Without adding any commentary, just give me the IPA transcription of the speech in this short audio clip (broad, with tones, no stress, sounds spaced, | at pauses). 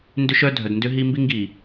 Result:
n d ʏ˦ ʃ œ˦ dʱ œ˨ d n d ʏ˦ ɦ i˦ m b i˦ ŋ ɡ i˨